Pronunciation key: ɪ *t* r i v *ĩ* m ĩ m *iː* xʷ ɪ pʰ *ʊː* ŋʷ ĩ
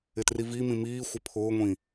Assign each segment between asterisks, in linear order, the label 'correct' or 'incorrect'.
correct, incorrect, correct, correct

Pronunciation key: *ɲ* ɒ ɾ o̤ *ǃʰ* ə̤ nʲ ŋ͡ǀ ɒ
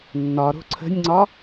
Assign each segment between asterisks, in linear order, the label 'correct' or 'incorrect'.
incorrect, incorrect

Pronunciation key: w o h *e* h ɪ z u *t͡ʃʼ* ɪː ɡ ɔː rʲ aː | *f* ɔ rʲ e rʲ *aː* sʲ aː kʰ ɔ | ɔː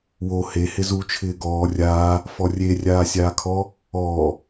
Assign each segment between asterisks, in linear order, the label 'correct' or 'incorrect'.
correct, incorrect, correct, correct

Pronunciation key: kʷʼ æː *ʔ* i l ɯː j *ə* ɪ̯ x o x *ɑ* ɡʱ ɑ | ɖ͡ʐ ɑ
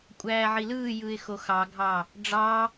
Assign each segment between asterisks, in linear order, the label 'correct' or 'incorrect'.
incorrect, incorrect, correct

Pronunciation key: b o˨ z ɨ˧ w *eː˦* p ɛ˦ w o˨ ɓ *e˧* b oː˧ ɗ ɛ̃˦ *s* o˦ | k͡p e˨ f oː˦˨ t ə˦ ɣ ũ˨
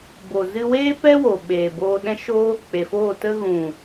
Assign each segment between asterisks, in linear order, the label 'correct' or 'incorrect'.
correct, incorrect, incorrect

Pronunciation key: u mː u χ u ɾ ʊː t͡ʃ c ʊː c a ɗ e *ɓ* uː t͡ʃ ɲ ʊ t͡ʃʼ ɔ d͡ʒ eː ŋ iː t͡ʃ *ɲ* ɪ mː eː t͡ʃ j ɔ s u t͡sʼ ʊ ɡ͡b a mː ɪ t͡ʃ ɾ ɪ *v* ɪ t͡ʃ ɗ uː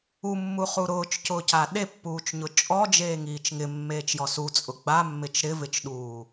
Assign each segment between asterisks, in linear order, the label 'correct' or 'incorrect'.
incorrect, incorrect, correct

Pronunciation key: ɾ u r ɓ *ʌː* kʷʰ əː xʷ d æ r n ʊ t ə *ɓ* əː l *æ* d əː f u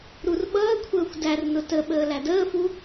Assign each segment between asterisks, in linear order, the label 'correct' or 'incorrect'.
correct, correct, correct

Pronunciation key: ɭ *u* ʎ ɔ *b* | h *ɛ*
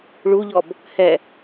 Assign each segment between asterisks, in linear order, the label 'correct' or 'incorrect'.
correct, correct, correct

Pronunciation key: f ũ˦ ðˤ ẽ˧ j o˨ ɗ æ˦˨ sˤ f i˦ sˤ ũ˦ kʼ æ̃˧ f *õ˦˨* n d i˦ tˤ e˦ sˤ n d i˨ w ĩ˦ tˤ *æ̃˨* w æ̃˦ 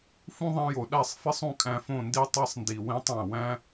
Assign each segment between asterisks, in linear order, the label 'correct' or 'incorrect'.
correct, correct

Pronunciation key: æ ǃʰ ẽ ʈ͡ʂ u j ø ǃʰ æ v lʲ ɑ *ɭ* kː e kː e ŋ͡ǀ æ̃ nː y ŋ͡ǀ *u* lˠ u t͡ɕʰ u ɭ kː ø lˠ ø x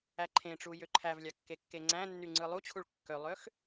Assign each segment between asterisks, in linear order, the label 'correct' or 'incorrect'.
incorrect, incorrect

